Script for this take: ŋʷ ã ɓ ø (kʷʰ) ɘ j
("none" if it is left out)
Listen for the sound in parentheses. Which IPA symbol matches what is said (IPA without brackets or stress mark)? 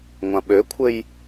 kʷʰ